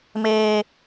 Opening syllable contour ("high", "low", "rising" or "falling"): high